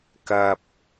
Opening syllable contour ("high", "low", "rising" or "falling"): low